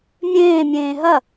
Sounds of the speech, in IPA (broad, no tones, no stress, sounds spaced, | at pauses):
mʲ ẽː mʲ ẽː ɦ ɐ